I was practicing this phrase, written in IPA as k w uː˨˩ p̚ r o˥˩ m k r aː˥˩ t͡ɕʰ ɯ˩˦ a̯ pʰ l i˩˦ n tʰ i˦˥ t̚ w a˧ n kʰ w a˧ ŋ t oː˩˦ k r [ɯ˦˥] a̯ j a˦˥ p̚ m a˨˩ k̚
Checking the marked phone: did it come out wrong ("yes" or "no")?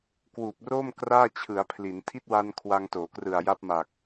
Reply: yes